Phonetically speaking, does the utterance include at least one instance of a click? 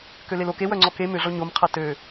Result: yes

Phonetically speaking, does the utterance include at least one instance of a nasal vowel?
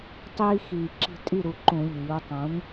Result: yes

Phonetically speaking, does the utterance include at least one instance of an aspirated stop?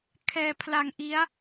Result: yes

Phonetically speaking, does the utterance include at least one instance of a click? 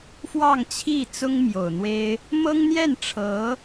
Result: no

